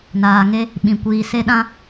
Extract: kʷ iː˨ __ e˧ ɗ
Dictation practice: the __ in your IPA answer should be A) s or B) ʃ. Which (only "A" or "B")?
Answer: A